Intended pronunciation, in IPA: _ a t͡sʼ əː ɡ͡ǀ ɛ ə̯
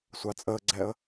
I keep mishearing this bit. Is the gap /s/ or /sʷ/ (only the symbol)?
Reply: sʷ